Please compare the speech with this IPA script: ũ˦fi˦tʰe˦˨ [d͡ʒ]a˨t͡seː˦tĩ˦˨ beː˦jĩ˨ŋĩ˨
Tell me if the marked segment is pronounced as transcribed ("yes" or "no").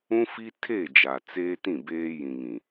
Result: yes